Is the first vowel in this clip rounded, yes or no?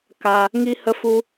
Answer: no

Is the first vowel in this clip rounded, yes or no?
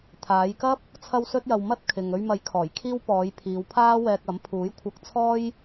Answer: no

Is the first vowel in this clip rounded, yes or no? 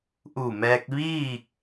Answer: yes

